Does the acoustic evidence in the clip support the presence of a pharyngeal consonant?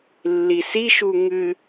no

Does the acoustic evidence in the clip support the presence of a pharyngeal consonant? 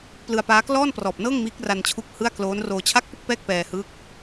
no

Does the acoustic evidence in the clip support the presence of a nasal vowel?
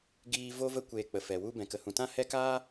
yes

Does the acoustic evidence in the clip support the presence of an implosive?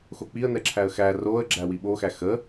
yes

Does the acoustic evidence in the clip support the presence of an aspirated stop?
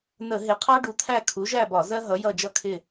yes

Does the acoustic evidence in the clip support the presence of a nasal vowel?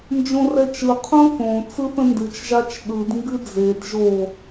yes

